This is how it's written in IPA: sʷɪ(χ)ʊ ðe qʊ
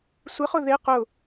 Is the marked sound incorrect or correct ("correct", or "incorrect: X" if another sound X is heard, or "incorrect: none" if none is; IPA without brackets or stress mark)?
correct